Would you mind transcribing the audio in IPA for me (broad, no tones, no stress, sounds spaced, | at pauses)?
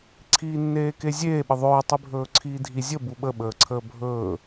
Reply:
ǀʰ iː nː eː k e zʲ eː ɓ ə ðˤ ɵː tˤ i bʱ ɵː ǀʰ iː dʱ i zʲ ə b u ɓ ə ɓ əː ǀʰ əː bʱ ɵː